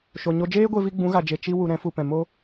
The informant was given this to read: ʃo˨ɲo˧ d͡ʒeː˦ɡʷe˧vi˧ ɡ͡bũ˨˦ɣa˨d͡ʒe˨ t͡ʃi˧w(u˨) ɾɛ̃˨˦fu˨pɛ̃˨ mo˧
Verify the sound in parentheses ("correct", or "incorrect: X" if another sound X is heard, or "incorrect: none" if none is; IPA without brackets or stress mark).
correct